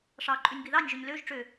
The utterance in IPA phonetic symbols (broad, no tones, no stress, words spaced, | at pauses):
ʂɑ ǃʼʉnʲbiðɑnʲ ʒøɲløʒ ʈ͡ʂø